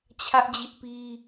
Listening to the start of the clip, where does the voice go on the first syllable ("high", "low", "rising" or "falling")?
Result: high